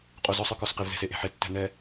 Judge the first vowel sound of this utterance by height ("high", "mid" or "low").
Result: mid